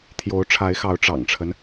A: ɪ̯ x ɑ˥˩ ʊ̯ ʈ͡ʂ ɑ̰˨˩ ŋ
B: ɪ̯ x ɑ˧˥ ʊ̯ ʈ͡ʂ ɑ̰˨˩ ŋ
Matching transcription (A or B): B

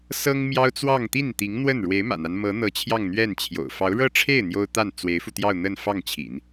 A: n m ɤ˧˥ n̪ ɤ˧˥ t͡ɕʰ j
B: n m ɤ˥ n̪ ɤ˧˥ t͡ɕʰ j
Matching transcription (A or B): A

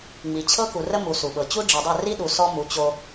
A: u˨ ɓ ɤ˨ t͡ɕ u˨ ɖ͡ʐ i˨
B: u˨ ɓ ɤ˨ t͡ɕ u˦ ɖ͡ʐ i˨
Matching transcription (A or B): B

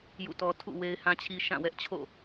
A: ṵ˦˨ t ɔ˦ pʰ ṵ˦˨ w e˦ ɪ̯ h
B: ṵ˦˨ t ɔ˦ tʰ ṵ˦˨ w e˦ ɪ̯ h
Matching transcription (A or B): B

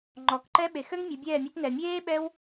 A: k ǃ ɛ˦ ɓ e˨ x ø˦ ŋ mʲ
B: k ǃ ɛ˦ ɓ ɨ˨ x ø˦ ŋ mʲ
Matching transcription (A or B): A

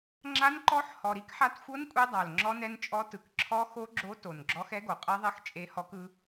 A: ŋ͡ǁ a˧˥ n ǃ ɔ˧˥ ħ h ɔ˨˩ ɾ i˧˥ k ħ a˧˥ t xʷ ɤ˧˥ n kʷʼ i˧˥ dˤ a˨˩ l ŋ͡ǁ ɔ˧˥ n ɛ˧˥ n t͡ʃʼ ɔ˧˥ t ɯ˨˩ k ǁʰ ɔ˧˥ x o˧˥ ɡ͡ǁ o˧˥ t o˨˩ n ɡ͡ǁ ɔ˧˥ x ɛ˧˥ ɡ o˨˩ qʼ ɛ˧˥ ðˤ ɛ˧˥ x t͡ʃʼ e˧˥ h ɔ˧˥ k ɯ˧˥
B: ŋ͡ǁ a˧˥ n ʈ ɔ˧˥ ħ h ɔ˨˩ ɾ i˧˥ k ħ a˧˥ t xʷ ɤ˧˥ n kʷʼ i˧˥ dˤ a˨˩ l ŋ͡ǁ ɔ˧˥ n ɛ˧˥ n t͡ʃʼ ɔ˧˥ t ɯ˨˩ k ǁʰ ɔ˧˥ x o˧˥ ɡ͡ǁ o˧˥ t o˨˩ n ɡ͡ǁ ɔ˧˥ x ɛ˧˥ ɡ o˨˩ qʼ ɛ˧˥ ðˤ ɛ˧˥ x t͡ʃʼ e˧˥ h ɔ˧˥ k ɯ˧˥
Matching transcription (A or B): A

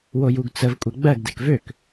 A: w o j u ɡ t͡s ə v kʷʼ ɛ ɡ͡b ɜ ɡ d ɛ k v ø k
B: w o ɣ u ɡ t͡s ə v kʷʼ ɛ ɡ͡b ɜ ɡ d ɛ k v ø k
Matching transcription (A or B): A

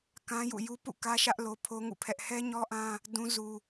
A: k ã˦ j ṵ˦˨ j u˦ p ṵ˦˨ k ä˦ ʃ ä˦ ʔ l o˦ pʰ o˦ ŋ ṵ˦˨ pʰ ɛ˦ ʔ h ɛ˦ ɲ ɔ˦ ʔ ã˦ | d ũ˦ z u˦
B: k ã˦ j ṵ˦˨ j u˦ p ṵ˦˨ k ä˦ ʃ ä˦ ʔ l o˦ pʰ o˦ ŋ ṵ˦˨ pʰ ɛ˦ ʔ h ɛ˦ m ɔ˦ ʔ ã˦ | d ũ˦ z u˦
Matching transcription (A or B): A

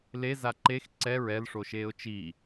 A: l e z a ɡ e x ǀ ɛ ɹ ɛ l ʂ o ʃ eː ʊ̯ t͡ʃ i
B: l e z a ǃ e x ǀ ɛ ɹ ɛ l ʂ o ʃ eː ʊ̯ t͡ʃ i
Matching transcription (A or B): B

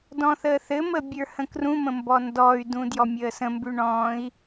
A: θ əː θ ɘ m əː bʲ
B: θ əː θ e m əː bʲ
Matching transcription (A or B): A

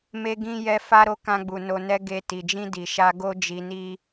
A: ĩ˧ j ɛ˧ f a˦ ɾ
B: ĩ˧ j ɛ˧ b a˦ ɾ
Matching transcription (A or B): A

